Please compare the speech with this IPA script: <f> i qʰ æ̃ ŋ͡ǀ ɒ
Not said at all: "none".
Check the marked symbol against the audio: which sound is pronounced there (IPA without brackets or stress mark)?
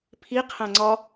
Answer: pʰ